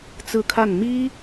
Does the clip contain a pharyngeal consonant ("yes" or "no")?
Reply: no